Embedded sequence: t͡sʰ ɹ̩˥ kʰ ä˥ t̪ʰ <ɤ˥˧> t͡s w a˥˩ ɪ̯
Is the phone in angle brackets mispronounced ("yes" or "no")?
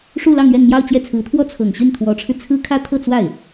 no